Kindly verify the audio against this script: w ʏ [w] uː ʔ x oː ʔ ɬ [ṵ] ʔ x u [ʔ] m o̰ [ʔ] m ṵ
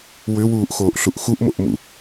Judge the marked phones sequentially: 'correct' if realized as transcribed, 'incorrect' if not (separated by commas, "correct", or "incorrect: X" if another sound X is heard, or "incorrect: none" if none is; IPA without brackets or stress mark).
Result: correct, incorrect: u, correct, correct